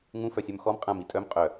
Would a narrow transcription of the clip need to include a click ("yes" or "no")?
no